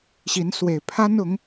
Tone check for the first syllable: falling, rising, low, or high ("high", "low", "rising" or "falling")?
rising